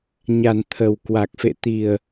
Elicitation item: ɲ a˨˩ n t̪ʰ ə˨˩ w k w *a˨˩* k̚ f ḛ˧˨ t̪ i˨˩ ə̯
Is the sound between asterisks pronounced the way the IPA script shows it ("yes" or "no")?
yes